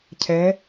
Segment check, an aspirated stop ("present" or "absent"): present